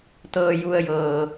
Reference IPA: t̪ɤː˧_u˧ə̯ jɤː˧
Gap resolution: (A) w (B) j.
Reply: B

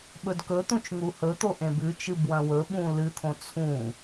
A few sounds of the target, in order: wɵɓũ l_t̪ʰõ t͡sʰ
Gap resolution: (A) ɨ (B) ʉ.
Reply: A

